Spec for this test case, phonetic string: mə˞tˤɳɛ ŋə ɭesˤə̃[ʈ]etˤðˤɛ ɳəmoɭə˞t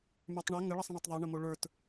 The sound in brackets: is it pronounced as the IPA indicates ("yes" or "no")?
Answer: no